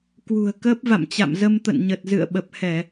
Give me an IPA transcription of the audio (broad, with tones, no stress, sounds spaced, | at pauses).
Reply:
k w ṳ˨˩ ə̯ k əː˦˥ p̚ v a̰˧˨ m t͡ɕ a̰˧˨ m z ə˧ m t̪ ə̰˧˨ n ɲ ə˨˩ t̚ z ɨ̰˧˨ ə̯ ɓ ə˨˩ p̚ h ɛ˧˩˨